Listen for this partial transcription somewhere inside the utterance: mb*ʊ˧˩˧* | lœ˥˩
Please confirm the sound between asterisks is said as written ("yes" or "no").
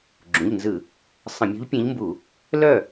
no